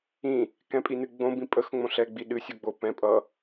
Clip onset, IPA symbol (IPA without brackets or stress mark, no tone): ĩ